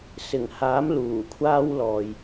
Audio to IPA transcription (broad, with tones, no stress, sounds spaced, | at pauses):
s ɪ˨˩ ŋ h aː˨˥ m l uː˨˩ kʷʰ aː˥ w l ɔː˨ j